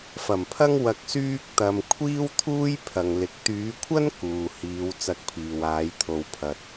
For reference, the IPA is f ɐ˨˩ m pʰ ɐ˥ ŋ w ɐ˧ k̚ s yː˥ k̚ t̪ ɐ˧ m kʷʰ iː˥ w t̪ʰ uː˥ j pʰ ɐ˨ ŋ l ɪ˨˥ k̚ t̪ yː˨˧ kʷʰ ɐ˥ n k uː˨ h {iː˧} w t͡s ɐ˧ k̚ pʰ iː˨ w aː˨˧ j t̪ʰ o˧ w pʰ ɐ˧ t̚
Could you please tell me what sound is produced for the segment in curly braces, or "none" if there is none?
iː˨˧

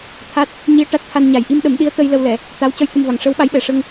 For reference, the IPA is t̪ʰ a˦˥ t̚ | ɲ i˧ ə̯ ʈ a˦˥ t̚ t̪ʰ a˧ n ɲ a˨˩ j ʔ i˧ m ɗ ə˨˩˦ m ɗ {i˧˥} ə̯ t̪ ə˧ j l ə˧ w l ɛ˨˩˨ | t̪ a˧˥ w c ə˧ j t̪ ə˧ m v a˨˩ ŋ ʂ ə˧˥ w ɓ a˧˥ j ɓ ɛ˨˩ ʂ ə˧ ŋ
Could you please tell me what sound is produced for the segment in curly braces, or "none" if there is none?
i˧˥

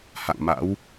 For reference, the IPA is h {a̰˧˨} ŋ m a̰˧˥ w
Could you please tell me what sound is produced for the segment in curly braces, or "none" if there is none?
a̰˧˨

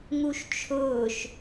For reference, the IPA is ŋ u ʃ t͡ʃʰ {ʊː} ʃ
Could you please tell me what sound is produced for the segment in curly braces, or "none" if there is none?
ʊː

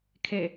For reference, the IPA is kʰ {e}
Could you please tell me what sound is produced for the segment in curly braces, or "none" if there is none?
e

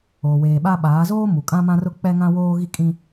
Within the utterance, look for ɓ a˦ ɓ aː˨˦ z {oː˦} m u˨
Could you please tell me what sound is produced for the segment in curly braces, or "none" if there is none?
oː˦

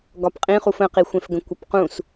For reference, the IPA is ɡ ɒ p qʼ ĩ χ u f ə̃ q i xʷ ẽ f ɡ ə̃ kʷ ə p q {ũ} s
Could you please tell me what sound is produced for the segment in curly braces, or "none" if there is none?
ũ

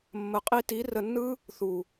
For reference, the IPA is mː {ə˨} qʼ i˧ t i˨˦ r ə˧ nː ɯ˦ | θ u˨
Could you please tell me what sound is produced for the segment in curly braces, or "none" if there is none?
ə˨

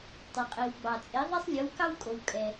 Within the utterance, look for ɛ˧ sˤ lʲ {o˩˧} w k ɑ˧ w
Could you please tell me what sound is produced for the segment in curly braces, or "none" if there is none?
o˩˧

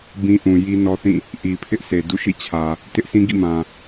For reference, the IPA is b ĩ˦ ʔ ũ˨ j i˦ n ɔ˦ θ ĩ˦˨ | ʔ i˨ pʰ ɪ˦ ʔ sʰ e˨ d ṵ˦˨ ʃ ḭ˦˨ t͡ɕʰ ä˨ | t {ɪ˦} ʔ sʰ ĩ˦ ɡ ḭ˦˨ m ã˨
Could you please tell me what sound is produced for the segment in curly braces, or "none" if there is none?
ɪ˦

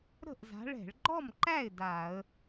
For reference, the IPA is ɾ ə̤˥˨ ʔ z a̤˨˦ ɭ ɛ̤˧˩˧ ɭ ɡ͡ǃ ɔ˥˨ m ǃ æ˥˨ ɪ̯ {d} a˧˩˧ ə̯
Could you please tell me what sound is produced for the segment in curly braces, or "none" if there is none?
d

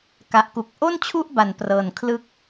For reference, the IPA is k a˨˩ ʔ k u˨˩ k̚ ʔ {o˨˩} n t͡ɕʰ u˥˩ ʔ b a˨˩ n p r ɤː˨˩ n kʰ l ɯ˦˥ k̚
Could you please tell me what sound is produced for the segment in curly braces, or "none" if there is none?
o˥˩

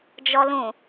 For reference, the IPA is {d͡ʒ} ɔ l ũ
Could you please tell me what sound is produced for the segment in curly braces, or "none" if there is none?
d͡ʒ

